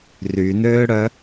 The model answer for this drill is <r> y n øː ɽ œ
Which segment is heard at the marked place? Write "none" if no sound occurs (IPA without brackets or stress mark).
r